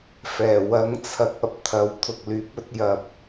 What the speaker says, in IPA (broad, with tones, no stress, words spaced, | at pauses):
fɛː˨˩ wɐ˨˥ŋ t͡sʰɐ˨˥k̚ɐ˨˥p̚ t̪ʰɐ˨w t̪ʰʊ˨k̚lyː˨˥p̚ɵ˨˥t̚ jɐ˧p̚